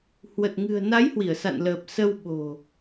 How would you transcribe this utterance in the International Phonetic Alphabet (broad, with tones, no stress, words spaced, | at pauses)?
hwə˨˩t̚ŋɨ̤˨˩ə̯na˨˦j hwi˧˩ə̯sa̰˧˨nləː˨˩p̚ sə˧w ɓo̤˨˩